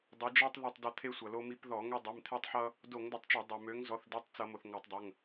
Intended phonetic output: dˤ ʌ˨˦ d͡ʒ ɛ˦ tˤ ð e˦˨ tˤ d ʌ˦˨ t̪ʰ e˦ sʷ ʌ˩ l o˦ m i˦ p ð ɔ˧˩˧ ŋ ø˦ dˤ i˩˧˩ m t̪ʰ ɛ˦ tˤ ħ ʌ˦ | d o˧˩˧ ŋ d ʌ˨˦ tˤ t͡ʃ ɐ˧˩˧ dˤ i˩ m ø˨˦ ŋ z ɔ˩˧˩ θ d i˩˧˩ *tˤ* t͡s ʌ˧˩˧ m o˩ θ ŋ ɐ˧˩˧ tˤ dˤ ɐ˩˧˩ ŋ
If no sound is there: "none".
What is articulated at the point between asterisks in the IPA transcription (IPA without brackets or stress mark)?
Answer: tˤ